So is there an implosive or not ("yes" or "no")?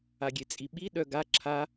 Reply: yes